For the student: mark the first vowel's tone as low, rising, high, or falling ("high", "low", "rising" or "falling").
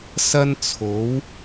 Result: high